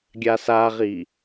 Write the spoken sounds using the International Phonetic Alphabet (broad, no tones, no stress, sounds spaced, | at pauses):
ɡʲ a s a ʁ i